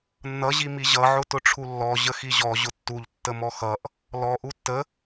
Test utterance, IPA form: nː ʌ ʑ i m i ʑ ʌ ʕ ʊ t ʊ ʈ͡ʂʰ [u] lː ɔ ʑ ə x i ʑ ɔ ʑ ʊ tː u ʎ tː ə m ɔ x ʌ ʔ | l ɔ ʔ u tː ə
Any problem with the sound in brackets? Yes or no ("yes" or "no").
no